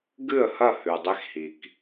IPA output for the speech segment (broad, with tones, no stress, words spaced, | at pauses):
ɡɨ˦˨ə̯hɐ˦˨ hʉ˨dˤe˦xhi˨k